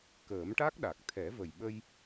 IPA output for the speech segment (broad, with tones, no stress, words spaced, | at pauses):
kəː˨˩˦mʈa˦˥k̚ɗa˨˩k̚ t̪ʰɛ˨˩˦və˨˩jɓə˧j